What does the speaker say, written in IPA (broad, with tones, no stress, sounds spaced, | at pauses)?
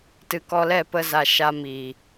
t ɨ˧ k ɔ˧ l ɛ˦˨ p ə˧ z a˨ ʃ a˧ m iː˨